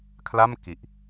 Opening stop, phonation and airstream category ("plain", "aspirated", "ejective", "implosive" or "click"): aspirated